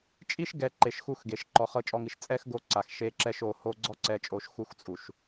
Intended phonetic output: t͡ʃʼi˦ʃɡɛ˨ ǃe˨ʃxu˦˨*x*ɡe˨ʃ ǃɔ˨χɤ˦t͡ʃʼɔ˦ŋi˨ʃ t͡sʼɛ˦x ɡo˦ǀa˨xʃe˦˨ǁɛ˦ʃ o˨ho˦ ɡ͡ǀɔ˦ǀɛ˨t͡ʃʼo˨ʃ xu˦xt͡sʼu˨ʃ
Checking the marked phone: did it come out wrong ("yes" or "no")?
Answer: no